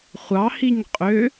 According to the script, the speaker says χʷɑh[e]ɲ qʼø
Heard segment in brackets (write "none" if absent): i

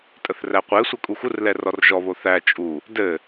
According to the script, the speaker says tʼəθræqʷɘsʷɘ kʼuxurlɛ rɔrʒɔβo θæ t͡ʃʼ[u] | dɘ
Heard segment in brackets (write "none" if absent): u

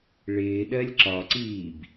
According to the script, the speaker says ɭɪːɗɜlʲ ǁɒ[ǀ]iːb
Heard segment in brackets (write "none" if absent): ǀ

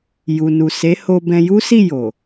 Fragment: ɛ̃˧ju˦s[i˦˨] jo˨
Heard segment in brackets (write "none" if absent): i˦˨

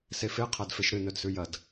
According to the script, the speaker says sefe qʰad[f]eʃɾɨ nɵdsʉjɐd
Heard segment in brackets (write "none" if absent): f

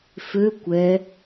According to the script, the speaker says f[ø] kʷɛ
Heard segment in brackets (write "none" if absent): ø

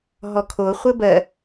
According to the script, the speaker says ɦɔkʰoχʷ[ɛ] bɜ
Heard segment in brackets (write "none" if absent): ɘ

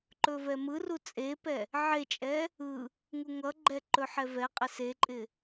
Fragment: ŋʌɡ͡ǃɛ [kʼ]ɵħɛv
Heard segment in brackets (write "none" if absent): ǃ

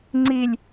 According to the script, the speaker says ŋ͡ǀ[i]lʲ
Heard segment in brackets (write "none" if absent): i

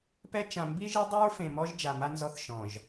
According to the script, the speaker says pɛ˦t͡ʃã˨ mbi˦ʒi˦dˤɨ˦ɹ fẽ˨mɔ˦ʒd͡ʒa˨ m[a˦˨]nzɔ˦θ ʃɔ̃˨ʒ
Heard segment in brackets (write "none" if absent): a˦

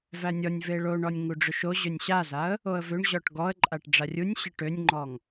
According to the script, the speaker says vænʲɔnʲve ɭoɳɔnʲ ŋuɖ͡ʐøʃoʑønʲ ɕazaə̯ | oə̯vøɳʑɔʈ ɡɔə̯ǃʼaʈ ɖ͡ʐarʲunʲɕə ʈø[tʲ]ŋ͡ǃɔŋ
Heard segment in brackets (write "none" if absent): nʲ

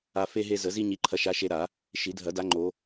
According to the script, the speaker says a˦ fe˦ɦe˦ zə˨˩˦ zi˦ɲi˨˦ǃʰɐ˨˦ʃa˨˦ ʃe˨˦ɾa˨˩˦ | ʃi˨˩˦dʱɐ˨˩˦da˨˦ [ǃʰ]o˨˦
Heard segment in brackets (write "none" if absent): ŋ͡ǃ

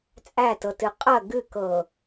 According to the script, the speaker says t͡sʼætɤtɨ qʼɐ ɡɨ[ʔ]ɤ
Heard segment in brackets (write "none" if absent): k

